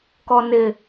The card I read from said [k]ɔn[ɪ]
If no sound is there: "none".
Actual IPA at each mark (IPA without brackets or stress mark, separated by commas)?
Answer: k, ɪ